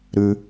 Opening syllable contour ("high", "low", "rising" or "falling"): high